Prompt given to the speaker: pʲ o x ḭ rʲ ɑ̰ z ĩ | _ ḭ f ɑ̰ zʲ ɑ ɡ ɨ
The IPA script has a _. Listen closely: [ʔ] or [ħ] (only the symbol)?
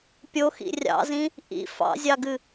ʔ